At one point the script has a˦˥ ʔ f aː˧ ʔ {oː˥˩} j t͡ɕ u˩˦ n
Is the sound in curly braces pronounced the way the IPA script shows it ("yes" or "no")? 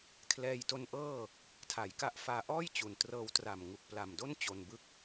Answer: no